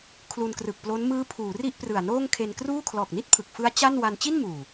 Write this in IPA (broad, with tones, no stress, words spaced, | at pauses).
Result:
kʰlu˧nkrɯ˨˩k̚plo˦˥n mɯː˦˥pʰuː˩˦ ri˥˩ʔprɯ˨˩a̯noː˥˩ŋ kʰe˧nkruː˥˩ kʰlɔː˨˩k̚ni˥˩t̚pʰɯ˨˩k̚ fɯ˦˥a̯ t͡ɕa˥˩n wa˧nt͡ɕi˥˩nmuː˨˩